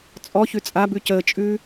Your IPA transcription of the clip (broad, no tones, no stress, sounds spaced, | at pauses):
t͡sʼ ɔ ç ʉ t͡sʼ a b ʉ c əː t͡ʃʼ ʉ